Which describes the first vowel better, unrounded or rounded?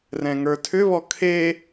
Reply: unrounded